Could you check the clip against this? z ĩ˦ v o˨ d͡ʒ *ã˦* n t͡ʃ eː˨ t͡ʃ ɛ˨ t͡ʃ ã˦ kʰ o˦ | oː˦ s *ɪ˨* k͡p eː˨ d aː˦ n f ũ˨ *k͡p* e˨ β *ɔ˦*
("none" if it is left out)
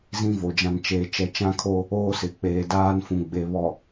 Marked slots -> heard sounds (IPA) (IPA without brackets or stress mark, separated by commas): ã˨, ɪ˨, ɡ͡b, ɔ˨